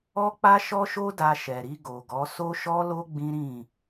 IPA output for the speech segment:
ɔ˦ k͡p a˦ ʃ ɔ˦ ʃ o˦ d a˧ ʃ ɛ˨ ɾ i˧ ɡ o˨ ɡ ɔ˨˦ s o˦ ʃ ɔ˦ l o˦ ɡ͡b ĩ˦ ɾ ĩ˦˨

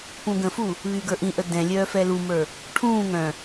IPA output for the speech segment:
p ũ ɡ ə̃ f u | β yː ɡ ə˞ ʔ ĩ ʔ ə d ɛ̃ lʲ œː f ɛ l u m ə˞ | ʈʰ ũː ŋ œ̃

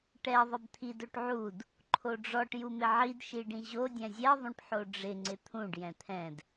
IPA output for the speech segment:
ʈ ɛ ðˤ ɪ b t̪ʰ i d o ʈ ʕ u d | ǃʰ o ɖ͡ʐ ɔ ʈ j u m ɪ ʕ i d ʃ i ɖ ĩ ʑ o dʲ ɛ̃ zʲ ɛ ðˤ ũ ʈ ħ o ɖ͡ʐ ɪ ŋ͡ǀ ɪ t̪ʰ ũ ɖ j ɛ̃ t̪ʰ ɛ̃ d

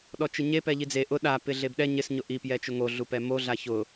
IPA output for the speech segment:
ɗ ɔ t͡ʃ ɪ ɲ e p ɛ ʎ i d͡z e ʔ ʊ ɗ a p ɪ ɮ e b ɗ ɛ ɲ ɪ s ɲ ʊ ʔ i p j ɛ t͡ʃ ʊ ŋ o ɮ u p ɛ m o ɮ a ç ʊ

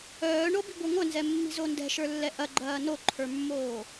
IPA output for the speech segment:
œː ɳ o b i̤ ɡʷ ə˞ ŋʷ œ n z ɛ mː i̤ z o n d ɛ̤ ʃ ə˞ lː ɛ ʔ ɐ ɡ͡ǃ ɐː n o ǃʰ ə˞ mː oː

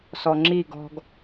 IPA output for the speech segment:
s ɔ ŋ͡ǁ i ɡ ɔ̤ ɡ

